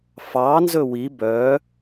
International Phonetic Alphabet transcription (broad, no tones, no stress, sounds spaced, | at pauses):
f ɑ n z ɵ w i b œ